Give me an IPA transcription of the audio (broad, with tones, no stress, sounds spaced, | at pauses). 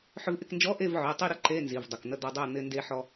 ħ ʏ˧ v ʔ ɪ˥˨ k n d͡ʒ ɔ˧˥˧ ʔ e˥˨ v ʕ ʏ˩˧˩ ɐ̯ tˤ i˥˨ ɾ ə˧˥˧ ǃ e˧˥˧ n z i˩˧˩ v dˤ ʊ˩˧˩ k n̪ ə˥˨ d̪ ɔ˧ dˤ ʊ˥˨ ɐ̯ n̪ ɪ˧ n d e˧ ħ ɔ˧